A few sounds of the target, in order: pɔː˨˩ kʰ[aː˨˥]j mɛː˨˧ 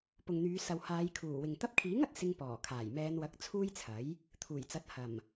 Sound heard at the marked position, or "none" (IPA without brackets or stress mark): aː˨˩